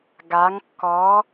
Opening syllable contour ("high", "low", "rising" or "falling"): rising